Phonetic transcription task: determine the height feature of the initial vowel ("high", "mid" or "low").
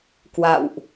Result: low